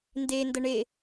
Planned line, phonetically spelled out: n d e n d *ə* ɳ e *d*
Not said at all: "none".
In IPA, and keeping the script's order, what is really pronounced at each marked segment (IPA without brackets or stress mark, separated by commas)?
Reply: ə, none